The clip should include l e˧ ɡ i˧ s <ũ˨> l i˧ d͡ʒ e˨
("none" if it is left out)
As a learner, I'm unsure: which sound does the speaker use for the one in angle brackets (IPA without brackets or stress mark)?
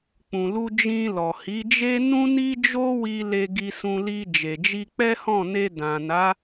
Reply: ũ˧